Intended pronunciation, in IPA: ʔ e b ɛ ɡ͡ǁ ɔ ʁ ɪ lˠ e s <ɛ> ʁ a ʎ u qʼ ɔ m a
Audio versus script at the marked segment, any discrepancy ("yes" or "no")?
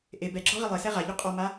no